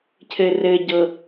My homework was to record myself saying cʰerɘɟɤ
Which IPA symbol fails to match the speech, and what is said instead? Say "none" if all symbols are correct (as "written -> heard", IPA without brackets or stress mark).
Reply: e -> ɘ